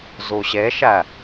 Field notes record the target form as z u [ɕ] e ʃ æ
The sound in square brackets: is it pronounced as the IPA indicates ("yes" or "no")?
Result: yes